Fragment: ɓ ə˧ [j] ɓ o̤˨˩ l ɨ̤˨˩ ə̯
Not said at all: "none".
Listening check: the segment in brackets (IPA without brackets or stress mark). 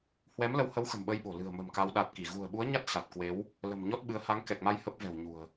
j